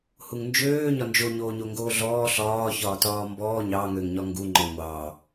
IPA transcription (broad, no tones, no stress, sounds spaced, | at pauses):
h u ŋ n d͡ʒ øː ɲ ɒ n d͡ʒ o ɲ oː ɲ o ŋ ɡ oː ɮ ɔː ɬ ɒː ç ɒː t ɒː m b ɔː ɲ ɑ ŋ ø ŋ ɲ ɒ ŋ ɡ u ŋ͡ǃ ɔ ŋʷ ɑ